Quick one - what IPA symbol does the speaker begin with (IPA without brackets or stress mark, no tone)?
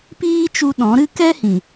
p